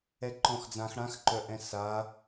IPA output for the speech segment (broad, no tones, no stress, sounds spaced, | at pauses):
ɛ ǃ ɔ̃ x d͡z ã x ɽ ã x ǃ œ ʔ ɛ̃ s a